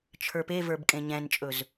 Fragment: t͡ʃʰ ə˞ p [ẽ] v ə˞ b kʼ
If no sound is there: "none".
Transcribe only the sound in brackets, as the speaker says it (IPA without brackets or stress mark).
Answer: e